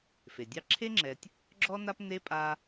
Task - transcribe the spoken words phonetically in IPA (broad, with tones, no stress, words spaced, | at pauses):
fe˩dʲɑ˦ǁʰe˥ŋ͡ǁɛ˨tʲ | ɡ͡ǁɔ˥na˥p ne˥pʼa˦